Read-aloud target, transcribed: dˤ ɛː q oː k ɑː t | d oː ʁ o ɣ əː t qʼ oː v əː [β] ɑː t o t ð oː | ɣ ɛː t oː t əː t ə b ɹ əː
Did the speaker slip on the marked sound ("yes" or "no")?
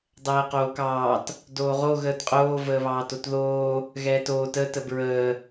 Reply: no